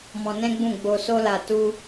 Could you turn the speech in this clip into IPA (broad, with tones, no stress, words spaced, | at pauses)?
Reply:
mɔ̃˧nɛ̃˦ɡ͡bũ˦˨ ɡ͡bo˧ so˦la˧ tu˦